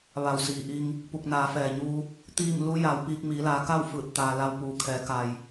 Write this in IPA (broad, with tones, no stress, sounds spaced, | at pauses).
ʋ a˧˩ w s iː˩ ʔ i˧ ŋ | p u˧˩ k̚ n aː˩˧ f ɛː˩ ɲ uː˧ | t̪ iː˥˨ m l u˧˥ j a˩˧ w p iː˧ k̚ m iː˩˧ l aː˩˧ k a˥˨ w f ɯː˧˩ t̚ t̪ aː˩ l a˧ w p uː˩˧ kʰ ɛː˩˧ k a˩ j